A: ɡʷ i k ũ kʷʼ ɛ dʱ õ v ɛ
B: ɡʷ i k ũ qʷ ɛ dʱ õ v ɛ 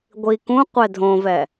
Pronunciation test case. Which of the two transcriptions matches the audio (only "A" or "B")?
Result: B